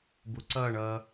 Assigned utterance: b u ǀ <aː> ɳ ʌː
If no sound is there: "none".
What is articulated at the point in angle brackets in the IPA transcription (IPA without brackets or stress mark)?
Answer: ʌː